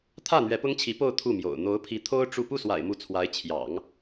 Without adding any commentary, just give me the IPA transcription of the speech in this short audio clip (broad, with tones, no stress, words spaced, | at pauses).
t̪ʰä˥˩ n̪ɥɛ˧˥pʊ˥ŋt͡ɕʰi˧˥po˥˧ʊ̯ t̪ʰu˥˩mjo̰˨˩ʊ̯ n̪o˧˥ʊ̯pʰi˧˥t̪ʰo˥ʊ̯ ʈ͡ʂu˥˧ pu˥˩swa̰˨˩ɪ̯ mu˧˥t͡sʰwa˧˥ɪ̯t͡ɕʰjɑ̰˨˩˦ŋ